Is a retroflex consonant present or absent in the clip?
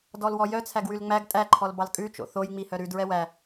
absent